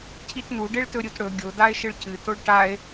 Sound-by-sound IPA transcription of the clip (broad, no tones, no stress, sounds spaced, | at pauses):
cʰ i t n u ɖ e ɭ t ɵ ɾʲ u t ɽ ɵ ɡʲ o d a e̯ ʃ ɨ ɭ c ɨ t o ɭ ʈ a e̯